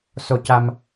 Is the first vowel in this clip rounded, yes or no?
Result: yes